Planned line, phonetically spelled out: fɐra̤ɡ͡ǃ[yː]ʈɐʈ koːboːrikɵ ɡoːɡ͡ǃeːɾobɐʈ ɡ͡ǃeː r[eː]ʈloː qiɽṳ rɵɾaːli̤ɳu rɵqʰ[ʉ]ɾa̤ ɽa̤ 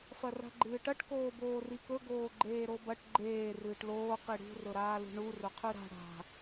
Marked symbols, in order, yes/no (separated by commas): no, no, yes